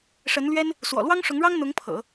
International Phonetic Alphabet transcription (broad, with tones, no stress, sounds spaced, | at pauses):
ʂ ə˧˥ n l ɥ ɛ˥ n | s w ɔ̰˨˩ l w ɑ˥ ŋ ʂ ʊ˧˥ ŋ ɻ ɑ˥ ŋ n̪ ʊ˧˥ ŋ pʰ ɤ̰˨˩˦